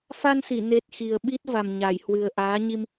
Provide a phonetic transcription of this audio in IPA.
fa˧nsi˧˩ne˨˩t̚ xi˨˩ə̯ɓi˦˥t̚va˨˩m ɲa˧˩jhwɨ˨˩ə̯ ʔaː˨˦ɲi˧m

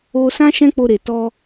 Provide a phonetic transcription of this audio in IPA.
o˧sã˦ ʃɛ̃˦k͡po˧ɾe˨ tɔ˧

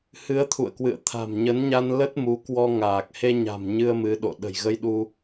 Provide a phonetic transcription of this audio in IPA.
hɨ˨˦ə̯t̪ʰṵ˧˨ə̯kwɨ̰˧˨ə̯t̪ʰa̤˨˩m ɲə˨˦nɲa˧n lə˦˥t̚mu˨˦kwɔ˧ŋaː˨˩k̚ he˧ɲa̤˨˩m ɲɨ˧ə̯mɨ˨˦ɗo̰˧˨ ɗə̤˨˩jɣə˧jɗu˧

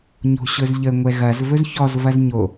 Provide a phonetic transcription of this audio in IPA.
ɲo̤ɕɵzʎə ŋʷɛɣɐz vɵzçɔz vɐzɲo

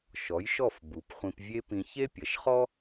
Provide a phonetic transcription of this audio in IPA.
ʃɔ˩˥jʃɔ˥˩f bu˩˥pχʷĩ˧p vʲe˥pĩ˧ çe˥pʲɐ˩ʃχɔ˥

